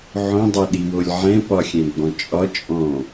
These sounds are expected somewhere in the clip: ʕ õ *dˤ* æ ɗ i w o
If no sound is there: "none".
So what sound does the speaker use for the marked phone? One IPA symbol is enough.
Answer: dˤ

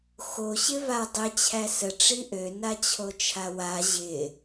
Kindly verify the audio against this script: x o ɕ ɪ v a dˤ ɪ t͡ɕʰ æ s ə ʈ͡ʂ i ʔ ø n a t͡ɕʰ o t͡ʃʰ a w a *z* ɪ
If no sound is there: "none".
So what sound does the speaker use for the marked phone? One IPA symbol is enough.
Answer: ʑ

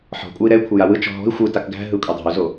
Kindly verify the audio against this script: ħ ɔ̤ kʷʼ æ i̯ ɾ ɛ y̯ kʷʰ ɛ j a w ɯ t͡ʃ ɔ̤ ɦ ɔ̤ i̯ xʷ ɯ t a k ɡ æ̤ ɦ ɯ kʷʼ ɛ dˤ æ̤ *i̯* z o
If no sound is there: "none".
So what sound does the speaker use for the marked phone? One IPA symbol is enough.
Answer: u̯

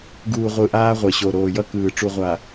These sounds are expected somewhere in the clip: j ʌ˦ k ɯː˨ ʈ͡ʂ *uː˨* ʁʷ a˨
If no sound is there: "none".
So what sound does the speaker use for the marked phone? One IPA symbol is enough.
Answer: u˨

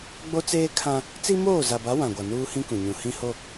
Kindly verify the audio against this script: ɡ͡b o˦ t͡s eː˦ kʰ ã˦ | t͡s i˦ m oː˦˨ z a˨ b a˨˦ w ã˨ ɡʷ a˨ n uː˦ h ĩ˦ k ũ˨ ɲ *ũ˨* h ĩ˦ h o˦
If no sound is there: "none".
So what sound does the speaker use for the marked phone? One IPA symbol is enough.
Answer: ũ˨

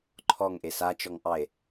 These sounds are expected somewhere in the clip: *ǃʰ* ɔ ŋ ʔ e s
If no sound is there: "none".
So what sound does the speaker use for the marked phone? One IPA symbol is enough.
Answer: ǃʰ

